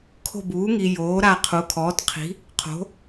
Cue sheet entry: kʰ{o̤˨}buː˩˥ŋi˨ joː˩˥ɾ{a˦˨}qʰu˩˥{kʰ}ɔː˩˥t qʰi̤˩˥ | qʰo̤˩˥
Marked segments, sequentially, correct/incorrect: incorrect: o̤˦˨, correct, correct

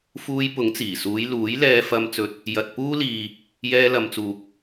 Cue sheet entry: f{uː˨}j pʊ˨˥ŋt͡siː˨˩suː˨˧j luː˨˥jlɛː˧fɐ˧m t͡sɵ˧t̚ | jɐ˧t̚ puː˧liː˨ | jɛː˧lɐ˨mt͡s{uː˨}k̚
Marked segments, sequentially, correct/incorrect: incorrect: uː˧, correct

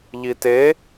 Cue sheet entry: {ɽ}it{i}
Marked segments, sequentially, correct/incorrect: incorrect: ʎ, incorrect: e

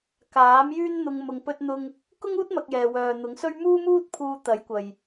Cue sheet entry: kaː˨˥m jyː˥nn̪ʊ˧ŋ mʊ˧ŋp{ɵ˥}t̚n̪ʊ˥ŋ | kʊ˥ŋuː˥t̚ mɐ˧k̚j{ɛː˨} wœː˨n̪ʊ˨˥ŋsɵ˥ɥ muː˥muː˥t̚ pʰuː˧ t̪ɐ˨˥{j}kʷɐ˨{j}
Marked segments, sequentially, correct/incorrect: correct, correct, correct, correct

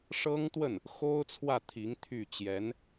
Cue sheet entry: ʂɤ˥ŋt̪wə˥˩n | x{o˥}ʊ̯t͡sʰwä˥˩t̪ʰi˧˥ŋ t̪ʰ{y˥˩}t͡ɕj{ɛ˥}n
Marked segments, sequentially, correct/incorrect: correct, correct, incorrect: ɛ˧˥

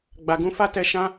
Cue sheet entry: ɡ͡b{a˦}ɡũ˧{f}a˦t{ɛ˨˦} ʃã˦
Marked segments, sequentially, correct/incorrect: incorrect: a˨, correct, incorrect: ɛ˧

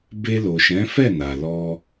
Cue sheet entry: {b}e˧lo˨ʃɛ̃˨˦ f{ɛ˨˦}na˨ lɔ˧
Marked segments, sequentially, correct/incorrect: correct, incorrect: ɛ˦˨

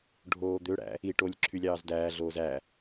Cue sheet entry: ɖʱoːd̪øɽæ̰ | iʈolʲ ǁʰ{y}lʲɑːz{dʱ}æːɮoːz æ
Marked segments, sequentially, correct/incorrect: correct, incorrect: d

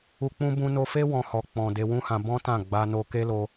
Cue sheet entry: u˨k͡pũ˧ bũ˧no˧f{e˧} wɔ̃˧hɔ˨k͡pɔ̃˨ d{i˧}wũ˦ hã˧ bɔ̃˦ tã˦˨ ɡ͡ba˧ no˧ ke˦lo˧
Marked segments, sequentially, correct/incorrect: incorrect: e˦, incorrect: e˧

